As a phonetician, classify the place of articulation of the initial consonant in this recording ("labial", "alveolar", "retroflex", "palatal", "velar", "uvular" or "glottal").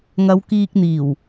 velar